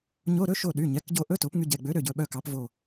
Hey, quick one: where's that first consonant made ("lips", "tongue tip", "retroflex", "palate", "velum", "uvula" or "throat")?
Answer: palate